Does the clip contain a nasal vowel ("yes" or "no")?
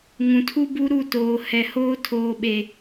yes